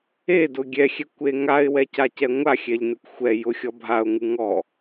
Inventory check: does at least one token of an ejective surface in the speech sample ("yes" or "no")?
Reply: no